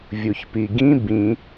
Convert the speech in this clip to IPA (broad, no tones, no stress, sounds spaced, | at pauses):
vʲ u ç p i ɡ ĩ b ĩ